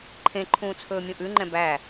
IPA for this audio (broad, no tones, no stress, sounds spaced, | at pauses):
ǃʰ ẽ ǃʰ ũː t͡sʰ ɵː mʲ ũ ʔ ʉ ŋ͡ǃ ɛ̃ b æ